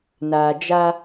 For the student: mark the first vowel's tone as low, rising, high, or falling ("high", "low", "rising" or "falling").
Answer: low